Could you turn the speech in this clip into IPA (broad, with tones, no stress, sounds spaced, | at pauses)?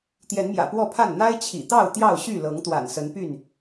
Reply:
t̪ j ɛ˨˦ n m j ä̰˨˩ p w ɔ˥˨ pʰ a˥˨ n n̪ a˦ ɪ̯ t͡ɕʰ ḭ˨˩ t̪ ɑ˥˨ ʊ̯ t̪ j ɑ˥˨ ʊ̯ ɕ y˥˨ l ɤ˨˦ ŋ t̪ w a̰˨˩ n s ə˨˦ n p y˥˨ n